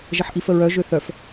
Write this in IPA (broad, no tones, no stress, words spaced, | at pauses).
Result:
ʒəħʔifəɹœ ʒøθœf